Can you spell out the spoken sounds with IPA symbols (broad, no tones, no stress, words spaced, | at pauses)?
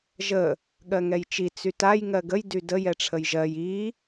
ʒə | ɠɜŋɛjt͡ʃi t͡sytaj ŋɜɡəj dydə jɛʈ͡ʂʰəjʒɜj i